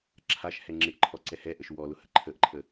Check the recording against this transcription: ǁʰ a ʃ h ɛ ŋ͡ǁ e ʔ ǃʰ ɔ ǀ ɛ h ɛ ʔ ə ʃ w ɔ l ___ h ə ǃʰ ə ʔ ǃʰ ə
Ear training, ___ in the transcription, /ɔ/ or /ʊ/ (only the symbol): ʊ